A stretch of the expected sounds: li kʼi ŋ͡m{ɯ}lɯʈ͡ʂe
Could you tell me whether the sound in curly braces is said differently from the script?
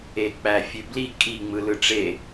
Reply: no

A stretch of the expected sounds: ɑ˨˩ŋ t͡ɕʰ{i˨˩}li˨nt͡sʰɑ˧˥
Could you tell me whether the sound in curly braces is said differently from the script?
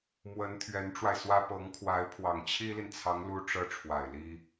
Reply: yes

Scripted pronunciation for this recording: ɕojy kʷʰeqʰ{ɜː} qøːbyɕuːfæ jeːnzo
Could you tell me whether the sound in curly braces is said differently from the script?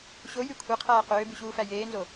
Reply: yes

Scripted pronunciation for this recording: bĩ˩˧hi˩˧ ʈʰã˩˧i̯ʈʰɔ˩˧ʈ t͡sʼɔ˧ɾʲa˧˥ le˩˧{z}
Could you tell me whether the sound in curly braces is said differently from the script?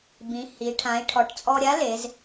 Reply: no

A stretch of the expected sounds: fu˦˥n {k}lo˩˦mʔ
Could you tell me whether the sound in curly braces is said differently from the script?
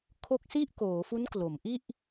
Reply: no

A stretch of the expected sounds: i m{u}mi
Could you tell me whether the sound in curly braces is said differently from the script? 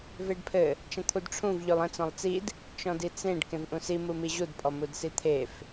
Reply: no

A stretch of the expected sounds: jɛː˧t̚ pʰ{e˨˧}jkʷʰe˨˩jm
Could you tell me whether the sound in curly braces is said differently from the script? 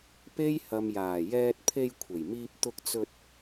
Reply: yes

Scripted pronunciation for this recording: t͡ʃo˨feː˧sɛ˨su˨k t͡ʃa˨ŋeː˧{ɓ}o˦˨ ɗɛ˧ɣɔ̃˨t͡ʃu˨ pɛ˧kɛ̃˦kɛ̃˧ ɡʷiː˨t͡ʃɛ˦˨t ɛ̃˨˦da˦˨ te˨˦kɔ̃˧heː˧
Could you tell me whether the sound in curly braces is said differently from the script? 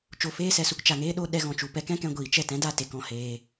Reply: yes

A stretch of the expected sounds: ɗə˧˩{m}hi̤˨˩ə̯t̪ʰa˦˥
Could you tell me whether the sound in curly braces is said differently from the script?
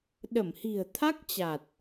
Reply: no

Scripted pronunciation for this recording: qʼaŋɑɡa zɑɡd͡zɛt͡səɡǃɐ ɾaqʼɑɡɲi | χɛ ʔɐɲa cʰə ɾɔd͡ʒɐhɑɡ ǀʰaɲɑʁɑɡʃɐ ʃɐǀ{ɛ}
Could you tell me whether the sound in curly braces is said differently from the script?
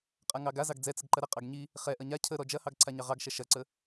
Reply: yes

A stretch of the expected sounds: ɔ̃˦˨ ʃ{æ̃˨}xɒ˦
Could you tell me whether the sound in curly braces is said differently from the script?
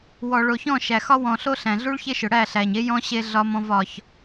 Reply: yes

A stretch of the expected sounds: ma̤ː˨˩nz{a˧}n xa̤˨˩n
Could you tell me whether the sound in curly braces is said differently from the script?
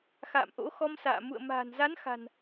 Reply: yes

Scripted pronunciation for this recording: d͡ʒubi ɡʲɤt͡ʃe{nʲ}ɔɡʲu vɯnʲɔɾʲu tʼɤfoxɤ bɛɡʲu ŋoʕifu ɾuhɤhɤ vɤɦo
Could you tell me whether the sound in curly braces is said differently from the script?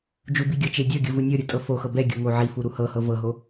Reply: yes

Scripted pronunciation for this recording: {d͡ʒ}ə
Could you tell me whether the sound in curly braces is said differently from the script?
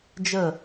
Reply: no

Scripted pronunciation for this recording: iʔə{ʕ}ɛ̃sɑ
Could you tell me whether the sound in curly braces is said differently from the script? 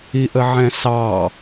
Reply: no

